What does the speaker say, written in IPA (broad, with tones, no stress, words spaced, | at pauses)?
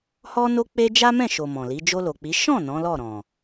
hɔ˦no˦k͡pe˦ d͡ʒa˦mɛ̃˦˨ ʃo˨ mɔ̃˨li˨˦ d͡ʒo˧lo˨k͡pi˨˦ ʃɔ̃˦˨ nɔ̃˨˦lɔ˦˨ ɾɔ̃˨